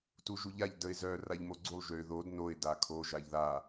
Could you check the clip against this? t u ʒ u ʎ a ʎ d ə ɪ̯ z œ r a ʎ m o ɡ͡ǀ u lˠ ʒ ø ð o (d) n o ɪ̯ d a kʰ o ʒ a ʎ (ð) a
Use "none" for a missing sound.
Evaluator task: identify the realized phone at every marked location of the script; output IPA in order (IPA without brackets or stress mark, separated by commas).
d, ð